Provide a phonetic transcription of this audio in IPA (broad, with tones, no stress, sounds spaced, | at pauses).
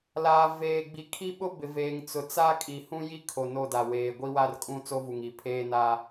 l aː˨ v eː˨ ɡ͡b i˨˦ kʰ i˦ ɓ ʊ˦ b ɪ˨ v eː˨ ŋ t͡s ʊ˨ t͡s a˦ kʼ i˨ h ũ˦ j i˦ kʰ o˨ n o˦˨ d a˨ w eː˨ ɡʷ i˦ w a˦ r kʼ ũ˦ t͡s o˦ v u˨ ŋ i˨ pʰ eː˦ n a˦